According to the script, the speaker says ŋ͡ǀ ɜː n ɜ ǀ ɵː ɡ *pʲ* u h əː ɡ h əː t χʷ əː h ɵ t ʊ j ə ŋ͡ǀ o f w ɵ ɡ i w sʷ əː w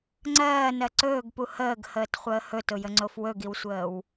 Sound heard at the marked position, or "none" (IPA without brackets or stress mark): p